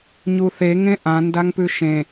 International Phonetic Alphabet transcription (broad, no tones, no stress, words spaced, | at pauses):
ɲuθe ŋẽʔãndaŋpʉ ʃẽ